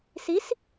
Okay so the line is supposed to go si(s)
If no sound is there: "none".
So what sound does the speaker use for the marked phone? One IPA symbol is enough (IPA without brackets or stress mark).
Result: s